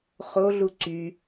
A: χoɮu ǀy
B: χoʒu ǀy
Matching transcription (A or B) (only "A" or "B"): A